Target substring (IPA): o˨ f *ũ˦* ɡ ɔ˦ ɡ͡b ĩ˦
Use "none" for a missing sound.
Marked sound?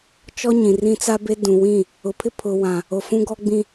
ũ˦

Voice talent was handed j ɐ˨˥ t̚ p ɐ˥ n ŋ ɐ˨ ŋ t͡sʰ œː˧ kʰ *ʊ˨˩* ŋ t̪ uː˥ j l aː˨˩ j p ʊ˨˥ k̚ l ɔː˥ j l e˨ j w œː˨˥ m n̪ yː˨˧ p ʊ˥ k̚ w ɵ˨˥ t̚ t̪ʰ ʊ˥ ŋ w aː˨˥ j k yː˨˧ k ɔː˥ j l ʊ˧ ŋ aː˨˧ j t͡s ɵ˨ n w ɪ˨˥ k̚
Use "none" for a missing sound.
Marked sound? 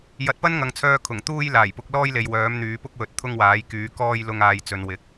ʊ˨˩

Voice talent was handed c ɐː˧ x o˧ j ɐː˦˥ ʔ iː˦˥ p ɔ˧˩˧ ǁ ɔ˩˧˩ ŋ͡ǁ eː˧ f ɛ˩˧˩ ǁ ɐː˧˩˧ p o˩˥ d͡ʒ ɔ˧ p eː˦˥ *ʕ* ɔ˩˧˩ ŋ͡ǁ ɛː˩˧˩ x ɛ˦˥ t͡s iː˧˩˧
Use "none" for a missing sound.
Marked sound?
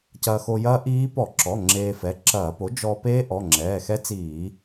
ʔ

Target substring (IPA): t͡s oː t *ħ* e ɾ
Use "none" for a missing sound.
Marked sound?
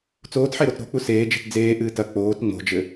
ħ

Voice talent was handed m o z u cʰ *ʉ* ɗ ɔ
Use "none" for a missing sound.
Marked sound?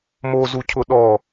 ʊ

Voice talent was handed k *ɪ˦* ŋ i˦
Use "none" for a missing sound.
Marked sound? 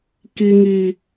i˦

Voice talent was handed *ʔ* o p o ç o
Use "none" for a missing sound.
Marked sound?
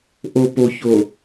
ʔ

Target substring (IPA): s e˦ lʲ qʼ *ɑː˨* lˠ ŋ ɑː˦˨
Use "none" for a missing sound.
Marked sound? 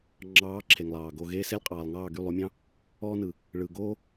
ɑː˨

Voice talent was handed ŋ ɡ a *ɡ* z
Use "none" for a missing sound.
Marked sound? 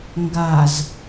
none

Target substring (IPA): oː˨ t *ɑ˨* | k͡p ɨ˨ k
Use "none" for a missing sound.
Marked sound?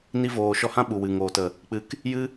ə˨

